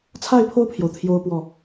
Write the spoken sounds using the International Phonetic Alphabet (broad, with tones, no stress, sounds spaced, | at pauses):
t͡sʰ a˥˧ ɪ̯ pʰ o˥˩ ʊ̯ pʰ j o˩ ʊ̯ t̪ʰ j o˥ ʊ̯ p w ɔ˥˩